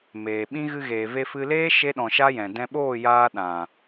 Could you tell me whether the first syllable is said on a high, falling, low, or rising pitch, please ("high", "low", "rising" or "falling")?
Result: low